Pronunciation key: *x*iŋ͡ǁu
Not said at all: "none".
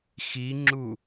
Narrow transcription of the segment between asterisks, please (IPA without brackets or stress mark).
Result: x